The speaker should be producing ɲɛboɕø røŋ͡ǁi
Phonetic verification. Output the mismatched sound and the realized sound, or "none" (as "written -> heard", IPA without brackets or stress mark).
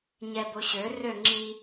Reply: none